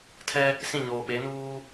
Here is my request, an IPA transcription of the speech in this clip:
tʰ ɛ˦ | s ĩ˦˨ ɲ oː˨ ɓ e˨˦ n uː˦

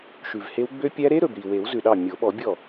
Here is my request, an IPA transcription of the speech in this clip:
ʃ ʉ˨˩ v h e˦˥ w ɡ͡b ø˦˥ pʲ æ˦˥ ɾ e˦˥ ɾ ɵ˨˩ b ɾ i˨˩ w e˨˩˦ w z ʉ˨˩ ɗ ɑ˥˩ mʲ o˨˩˦ ɓ ɔ˨˩˦ bʲ ɔ˥˩

